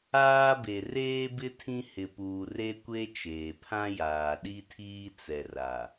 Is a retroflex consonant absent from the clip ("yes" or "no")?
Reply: yes